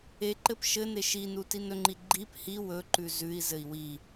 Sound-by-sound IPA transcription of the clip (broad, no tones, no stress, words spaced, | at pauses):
eǃɘp ʃɘne ʃinu tinɵŋ͡ǃi ɡ͡ǃip hi wɵǃʉ zʉi̯zɘi̯ wi